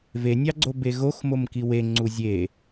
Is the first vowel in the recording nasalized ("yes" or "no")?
no